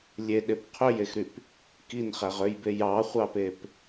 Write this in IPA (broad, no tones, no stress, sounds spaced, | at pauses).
lʲ e ɗ e p qʰ ø j e x ɾ y p | k i n χ æ ʁ ø j b e j ɑ χʷ ɑ p e p